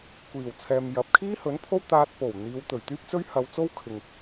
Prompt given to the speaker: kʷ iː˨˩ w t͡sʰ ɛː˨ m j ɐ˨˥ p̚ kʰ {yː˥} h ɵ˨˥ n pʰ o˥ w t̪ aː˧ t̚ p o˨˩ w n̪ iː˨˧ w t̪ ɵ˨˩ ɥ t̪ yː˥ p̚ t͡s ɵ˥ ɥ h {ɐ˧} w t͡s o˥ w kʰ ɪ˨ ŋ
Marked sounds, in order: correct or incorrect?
incorrect: iː˥, correct

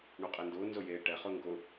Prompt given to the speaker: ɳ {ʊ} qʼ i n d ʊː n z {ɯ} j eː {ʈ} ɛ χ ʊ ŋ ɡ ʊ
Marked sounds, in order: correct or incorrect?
incorrect: u, incorrect: ʊ, correct

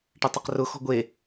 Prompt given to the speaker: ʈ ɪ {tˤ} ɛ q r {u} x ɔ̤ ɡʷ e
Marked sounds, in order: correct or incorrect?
correct, incorrect: ʊ

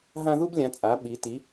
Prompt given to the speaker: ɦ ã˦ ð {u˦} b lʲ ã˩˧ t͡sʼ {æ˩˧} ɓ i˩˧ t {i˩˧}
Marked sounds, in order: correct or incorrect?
correct, incorrect: a˩˧, correct

